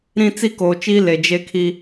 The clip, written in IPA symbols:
ɾĩ˦t͡si˦koː˨t͡ʃiː˦ le˨d͡ʒe˦kʰi˦

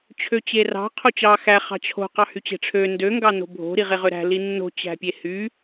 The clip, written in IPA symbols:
t͡ɕʰøt͡ɕerɑ̤ qʰot͡ɕɑ xæ χɑ̤t͡ɕʰo̤ qɑhyt͡ɕe̤ʈ͡ʂʰø ndø ŋɡɑno̤bʱo̤ ɾiʁeʁøɾæ̤ linːo̤ t͡ɕæ̤pʲehy

